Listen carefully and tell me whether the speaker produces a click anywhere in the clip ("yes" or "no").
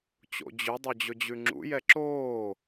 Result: yes